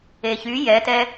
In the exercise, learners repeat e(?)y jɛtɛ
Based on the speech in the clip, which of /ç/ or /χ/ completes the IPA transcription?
ç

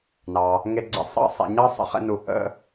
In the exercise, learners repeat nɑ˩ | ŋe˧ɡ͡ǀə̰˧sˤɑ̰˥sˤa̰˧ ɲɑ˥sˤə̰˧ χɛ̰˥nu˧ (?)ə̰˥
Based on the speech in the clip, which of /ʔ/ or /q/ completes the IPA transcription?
ʔ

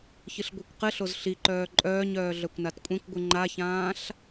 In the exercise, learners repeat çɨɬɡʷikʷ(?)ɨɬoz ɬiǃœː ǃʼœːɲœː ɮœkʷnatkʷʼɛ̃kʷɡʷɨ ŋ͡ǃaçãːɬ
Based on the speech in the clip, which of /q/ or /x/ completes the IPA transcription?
q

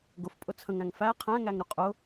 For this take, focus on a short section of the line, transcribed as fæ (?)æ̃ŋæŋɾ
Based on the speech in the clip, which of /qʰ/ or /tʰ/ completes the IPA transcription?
qʰ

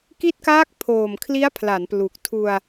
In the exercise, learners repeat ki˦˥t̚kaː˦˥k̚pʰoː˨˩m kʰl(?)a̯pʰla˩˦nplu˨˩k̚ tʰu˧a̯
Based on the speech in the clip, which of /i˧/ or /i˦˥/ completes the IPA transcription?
i˦˥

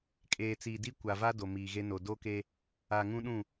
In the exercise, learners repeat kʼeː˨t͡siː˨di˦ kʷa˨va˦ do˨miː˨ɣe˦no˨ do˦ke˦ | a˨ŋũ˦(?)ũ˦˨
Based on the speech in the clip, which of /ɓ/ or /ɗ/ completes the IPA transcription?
ɗ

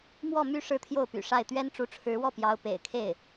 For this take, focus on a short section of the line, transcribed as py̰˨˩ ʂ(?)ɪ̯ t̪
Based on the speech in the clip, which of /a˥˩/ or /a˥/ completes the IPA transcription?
a˥˩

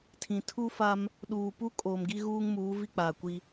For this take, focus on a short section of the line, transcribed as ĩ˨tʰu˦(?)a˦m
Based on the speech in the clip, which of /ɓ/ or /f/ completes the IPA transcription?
f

